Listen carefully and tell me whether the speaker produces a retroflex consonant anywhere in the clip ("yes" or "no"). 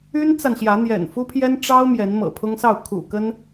yes